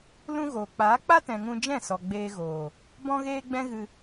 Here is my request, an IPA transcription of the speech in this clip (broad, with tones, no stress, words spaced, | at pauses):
lũ˦ɣoː˨ k͡paː˨˦k͡pa˦tɛ̃˨ ŋũ˧d͡ʒɛ̃˦˨sɔ˨ ɡ͡beː˧ɣoː˨ | bɔ̃˦ɣeː˦ɡ͡bɛ̃˦ɣɨ˧